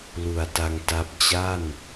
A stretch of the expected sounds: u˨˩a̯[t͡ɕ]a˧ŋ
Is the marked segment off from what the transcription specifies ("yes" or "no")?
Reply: yes